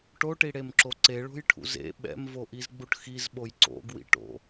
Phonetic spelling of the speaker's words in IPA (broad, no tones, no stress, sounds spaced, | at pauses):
ʈ o ʈ i ɽ e m ǁ o ǀ e ɭ o̤ j ʈʰ ṵ z ḛ ɓ ɛ̰ m v o ʔ i z ɡ͡b u ʈ x i z ɓ o j ǀ o̰ ɡ w ḭ ʈ o̰